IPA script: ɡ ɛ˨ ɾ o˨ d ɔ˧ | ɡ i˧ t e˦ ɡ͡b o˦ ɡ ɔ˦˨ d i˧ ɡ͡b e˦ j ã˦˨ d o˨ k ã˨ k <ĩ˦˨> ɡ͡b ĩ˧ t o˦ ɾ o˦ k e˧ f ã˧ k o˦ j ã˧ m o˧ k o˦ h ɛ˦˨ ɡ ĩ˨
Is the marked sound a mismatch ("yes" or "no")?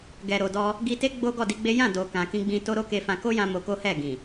yes